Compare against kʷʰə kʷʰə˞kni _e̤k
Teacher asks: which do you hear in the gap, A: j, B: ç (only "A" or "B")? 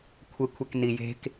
A